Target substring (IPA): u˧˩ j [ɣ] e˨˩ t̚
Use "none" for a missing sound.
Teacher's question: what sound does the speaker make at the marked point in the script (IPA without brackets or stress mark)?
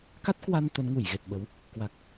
ɣ